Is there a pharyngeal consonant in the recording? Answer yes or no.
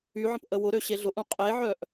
yes